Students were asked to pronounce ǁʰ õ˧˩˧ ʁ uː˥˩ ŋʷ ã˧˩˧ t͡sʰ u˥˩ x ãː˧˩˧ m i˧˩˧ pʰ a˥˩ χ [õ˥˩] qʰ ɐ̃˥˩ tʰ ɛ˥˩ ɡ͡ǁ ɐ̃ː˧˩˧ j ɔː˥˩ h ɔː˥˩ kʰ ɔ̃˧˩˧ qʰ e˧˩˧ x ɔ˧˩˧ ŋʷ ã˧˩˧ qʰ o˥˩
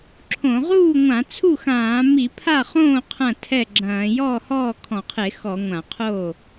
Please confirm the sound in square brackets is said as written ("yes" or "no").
no